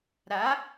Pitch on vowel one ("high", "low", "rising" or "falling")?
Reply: rising